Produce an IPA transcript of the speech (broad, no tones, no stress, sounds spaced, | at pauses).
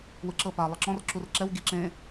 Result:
w ɯ ǁ ɤ p a lˠ ɯ ǁ ɔ̃ r ǁ u r ǁ ɛ w ɡ i ǁ ẽ